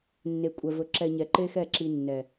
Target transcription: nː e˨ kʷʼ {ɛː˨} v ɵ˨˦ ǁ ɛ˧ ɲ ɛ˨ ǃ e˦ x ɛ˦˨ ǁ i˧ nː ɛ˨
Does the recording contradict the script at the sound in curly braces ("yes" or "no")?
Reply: yes